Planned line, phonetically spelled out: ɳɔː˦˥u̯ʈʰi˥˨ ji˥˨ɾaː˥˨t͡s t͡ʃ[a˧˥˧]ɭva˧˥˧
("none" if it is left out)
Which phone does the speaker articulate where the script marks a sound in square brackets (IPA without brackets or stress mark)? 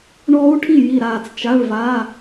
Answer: a˧˥˧